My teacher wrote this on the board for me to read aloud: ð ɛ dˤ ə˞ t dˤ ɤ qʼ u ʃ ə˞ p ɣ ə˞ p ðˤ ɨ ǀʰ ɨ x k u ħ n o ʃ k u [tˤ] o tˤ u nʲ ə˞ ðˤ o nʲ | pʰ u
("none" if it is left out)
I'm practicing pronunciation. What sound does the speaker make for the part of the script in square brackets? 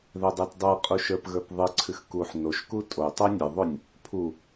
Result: tʼ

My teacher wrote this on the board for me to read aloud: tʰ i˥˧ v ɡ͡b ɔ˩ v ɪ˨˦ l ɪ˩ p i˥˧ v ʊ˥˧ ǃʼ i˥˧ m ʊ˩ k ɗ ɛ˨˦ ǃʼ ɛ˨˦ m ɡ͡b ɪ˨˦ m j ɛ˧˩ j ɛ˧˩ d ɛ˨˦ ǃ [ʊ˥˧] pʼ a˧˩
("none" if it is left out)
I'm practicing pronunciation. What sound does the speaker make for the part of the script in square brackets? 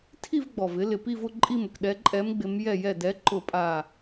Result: ʊ˧˩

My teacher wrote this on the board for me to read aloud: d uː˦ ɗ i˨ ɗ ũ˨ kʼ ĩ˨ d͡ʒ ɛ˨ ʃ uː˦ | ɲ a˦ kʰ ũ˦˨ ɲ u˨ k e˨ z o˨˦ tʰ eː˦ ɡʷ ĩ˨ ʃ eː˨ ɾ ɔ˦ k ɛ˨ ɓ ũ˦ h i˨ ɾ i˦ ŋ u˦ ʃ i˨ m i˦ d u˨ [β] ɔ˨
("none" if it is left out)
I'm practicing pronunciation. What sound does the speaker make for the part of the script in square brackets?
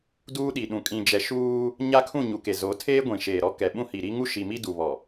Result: β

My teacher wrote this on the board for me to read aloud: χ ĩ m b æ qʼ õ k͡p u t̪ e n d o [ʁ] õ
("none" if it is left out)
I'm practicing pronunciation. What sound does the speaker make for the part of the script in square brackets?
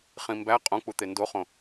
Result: χ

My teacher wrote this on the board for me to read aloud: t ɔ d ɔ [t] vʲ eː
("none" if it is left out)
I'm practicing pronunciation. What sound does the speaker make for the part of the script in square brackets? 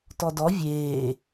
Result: none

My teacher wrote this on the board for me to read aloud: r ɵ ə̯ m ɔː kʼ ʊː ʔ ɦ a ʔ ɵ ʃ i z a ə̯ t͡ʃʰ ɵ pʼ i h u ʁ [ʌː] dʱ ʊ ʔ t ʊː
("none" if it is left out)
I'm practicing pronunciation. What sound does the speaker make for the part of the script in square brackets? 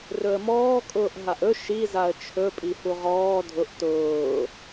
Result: ɔː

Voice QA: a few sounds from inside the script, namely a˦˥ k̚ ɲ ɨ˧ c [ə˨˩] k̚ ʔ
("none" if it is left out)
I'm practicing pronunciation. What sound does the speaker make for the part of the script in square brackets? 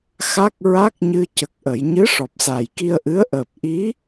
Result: ə˨˩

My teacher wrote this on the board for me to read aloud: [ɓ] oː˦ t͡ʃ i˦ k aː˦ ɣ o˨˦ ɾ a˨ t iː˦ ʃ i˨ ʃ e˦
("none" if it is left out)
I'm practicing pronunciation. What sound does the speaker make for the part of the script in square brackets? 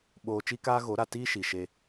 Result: ɓ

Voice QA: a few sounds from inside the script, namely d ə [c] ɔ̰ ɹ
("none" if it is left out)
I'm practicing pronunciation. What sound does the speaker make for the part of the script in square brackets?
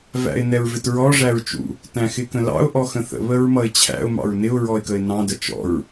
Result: t͡ʃ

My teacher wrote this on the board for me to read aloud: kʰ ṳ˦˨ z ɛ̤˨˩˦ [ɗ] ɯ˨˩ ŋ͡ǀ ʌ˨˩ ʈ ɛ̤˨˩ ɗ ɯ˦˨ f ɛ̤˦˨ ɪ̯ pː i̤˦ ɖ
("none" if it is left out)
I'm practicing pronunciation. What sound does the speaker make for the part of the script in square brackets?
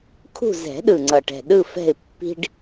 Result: ɗ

